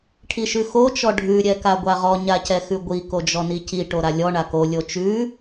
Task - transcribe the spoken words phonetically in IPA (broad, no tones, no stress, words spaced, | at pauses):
ʈʰiʃʉxo t͡ʃɔɖʱʉ ɾʲɛkaɡʷaʁɔ ɲacɛxʉɡʷi kod͡ʒɔnici ʈoɾalʲɔ ɳako lʲot͡ʃʉ